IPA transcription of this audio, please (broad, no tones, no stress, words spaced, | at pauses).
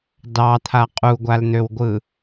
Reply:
dɑt̪ʰa qʼuɡʷaln̪øwɡʷɯ